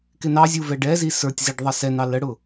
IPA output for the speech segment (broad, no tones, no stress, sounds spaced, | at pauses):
k ɪ n ɑ zʲ u v ɛ ɖ ɛ z i s ə˞ tʲ z i ɖ ðˤ ʌ s ɛ n ɑ l ə ɽ ʊ